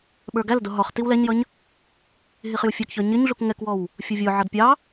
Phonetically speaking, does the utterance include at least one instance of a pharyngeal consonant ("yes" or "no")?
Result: yes